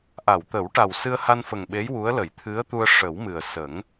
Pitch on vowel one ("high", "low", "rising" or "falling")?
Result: low